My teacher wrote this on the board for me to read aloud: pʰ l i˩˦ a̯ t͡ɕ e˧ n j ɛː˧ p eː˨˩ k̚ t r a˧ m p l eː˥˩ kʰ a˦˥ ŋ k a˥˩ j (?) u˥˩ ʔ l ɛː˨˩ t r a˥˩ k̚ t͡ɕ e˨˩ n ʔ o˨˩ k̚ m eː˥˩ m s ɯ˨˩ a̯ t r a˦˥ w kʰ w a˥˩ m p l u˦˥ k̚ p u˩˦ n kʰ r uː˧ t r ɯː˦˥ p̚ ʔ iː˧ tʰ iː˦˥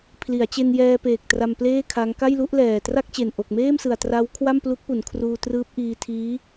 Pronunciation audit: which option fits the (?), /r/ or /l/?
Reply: l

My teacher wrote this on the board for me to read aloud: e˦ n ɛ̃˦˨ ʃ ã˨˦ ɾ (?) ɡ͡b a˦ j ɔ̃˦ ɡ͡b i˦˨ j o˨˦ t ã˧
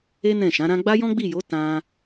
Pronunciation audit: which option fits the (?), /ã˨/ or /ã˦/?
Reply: ã˦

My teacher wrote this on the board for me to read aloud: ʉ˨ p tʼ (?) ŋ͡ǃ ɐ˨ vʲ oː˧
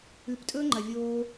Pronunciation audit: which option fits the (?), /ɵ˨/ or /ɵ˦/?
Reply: ɵ˦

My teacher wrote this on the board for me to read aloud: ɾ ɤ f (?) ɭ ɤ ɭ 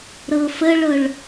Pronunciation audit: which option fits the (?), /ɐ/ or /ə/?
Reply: ə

